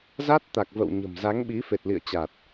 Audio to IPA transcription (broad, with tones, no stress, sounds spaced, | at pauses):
z a˦˥ t̚ t̪ a˨˩ k̚ v ə̰˧˨ w ɲ ə̤˨˩ m z a˨˦ ŋ ɓ i˨˦ f e˨˩ t̚ l ḭ˧˨ ə̯ t͡ɕ a˨˩ t̚